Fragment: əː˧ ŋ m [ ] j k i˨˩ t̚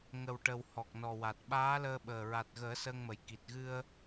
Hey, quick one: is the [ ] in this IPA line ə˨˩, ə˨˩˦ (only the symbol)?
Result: ə˨˩